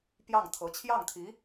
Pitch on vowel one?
falling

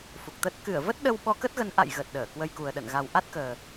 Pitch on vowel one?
low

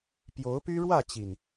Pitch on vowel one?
rising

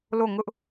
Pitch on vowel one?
falling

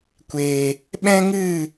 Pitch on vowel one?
low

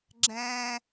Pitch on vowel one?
high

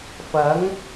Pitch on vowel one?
rising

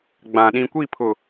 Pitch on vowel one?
low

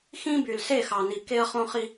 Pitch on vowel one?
high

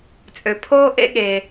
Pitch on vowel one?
low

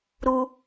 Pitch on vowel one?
high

